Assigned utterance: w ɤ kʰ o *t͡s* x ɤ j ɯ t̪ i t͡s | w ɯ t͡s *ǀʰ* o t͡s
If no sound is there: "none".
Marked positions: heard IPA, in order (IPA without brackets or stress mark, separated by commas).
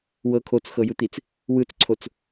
t͡s, ǀʰ